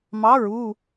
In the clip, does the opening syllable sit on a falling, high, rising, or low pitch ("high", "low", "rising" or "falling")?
rising